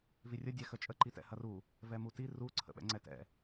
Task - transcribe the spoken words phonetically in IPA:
v i rʲ ə dʲ ɛ x ə t͡ʃʼ ə ǃ i t ɛ̰ h ɐ r u | v ɛ m u t i r u ǀʰ ə̰ ɓ ɛ̰ ŋ͡ǀ ɛ t ɛ̰

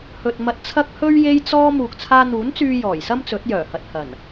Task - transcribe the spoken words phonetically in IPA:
h ɵ˨ t̚ m ɐ˧ t̚ t͡sʰ ɐ˥ k̚ h ɵ˥ ɥ j e˥ j t͡s ɔː˥ m uː˨ k̚ t͡sʰ aː˧ n̪ uː˨˥ n t͡s yː˧ j ɔː˨˩ j s ɐ˥ m t͡s ɵ˨˥ t̚ j œː˨˩ h ɐ˨ t̚ h ɐ˨˩ n

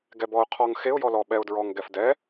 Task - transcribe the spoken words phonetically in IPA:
ɡ ɛ b ɔ ʊ̯ qʰ ɔ ŋ x e ʊ̯ j ɔ l ɔ ɓ ɛ ʊ̯ d ɹ ɔ ŋ ɡ ɛ f d ɛ

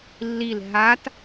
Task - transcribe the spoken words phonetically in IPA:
lː i l ɦ a t

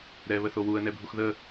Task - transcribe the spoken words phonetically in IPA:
ɾ ɛ β ə θ o w u ə̯ n ɛ bʱ u x ð ə

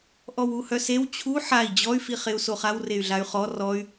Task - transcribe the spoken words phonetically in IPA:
ʔ ɔ w u h œ s e w t͡ɕʰ u ħ a i̯ d͡ʑ ɔ y̯ f i χ e u̯ s o χ a w r e y̯ ɮ a y̯ χ ɔ r ɔ y̯

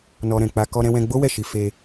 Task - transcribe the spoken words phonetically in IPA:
n ɔ˧ ɾ ɛ̃˨ k͡p a˧ k ɔ˧ ɾ ɛ̃˧ w ɛ̃˧ ɡ͡b o˦ w ɛ˦˨ ʃ i˧ f e˧

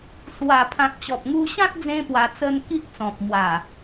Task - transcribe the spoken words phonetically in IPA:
s w a˨˩ pʰ ã˨ k̚ t͡ɕ ɔ˨ p̚ ŋ u˧ ɕ ã˦ t̚ d͡z ẽ˦ p w a˧ t͡s ə˦ n k i˦ ʔ t͡s ɔ̃˨ p̚ m w a˨˩

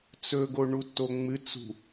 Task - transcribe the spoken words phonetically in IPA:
t͡s ɵ ɡ o ɳ u tː o ŋ͡m ɨ t͡s ṳ

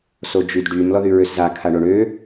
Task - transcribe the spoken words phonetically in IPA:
s o d͡ʒ y d ɖ y m l ɔ ð y ɹ ø s z a kʰ a ɳ o ɳ ø

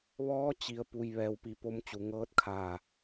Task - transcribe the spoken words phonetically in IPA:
ʋ ɔː˧˥ t͡ɕ i˩ ə̯ p u˩ j ʋ ɛː˩ w p i˩˧ p o˧ m t͡ɕ u˩ ŋ ɤː˧˥ t̚ kʰ aː˧˩

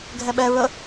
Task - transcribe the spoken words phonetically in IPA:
ɡʱ ɛ ɓ ɛ ɹ ə

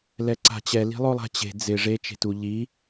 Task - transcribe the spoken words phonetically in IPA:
l ɛ ǀ a̤ t͡ɕ ɛ l i̤ lˠ o lˠ a̤ t͡ɕ e̤ d͡z ɪ ʐ e t͡ʃ e̤ t u ʎ i

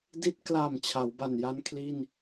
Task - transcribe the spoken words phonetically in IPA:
d i˥˩ t̚ k l a˨˩ m t͡ɕʰ a˩˦ w b a˨˩ n j a˦˥ n kʰ l i˥˩ n

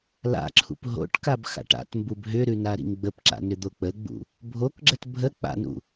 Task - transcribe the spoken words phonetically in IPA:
l a̰ ǁʰ ṵ p ɦ o̰ ʈ k a b x a̰ ʈ a̰ t m b u b ɦ ʏ ɾ ʉ n a ɾ ḭ ŋ ɡ͡b ə p ǁ a̰ n ʏ d̪ o k͡p ə ɡ͡b ṵ | bʱ o k ɡ͡ǁ ə t bʱ ə k͡p a̰ n ṵ

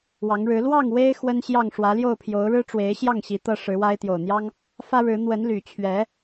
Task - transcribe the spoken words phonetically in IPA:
w ɑ˨˦ ŋ ɻ ɻ̩˨˦ l w ɑ˥˨ ŋ w e˦ ɪ̯ x w ə˦ n ɕ j ɑ˥˨ ŋ ʂ w ä˨˦ l j o˥˨ ʊ̯ pʰ j o˨˦ ʊ̯ ɻ ɻ̩˦ ʈ͡ʂ w e˨˦ ɪ̯ ɕ j ɑ˥˨ ŋ ɕ i˨˦ t̪ ɤ˦ ʂ ɻ̩˨˦ w a˦ ɪ̯ t̪ j o˨˩ ʊ̯ n̪ j ɑ˦ ŋ | f ä˦ ɻ ɻ̩˨˦ n̪ w ə˨˦ n l y˨˩ t͡ɕʰ ɥ ɛ˨˦

